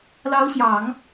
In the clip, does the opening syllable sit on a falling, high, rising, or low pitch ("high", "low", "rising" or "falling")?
rising